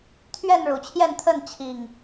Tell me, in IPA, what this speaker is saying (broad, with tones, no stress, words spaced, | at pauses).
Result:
t̪ʰɥɛ˥˨nɻu˨˩t͡ɕʰjɛ˥˨nt̪ʰə˥˨n t͡ɕʰi˨˩ŋ